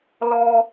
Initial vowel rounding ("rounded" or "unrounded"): rounded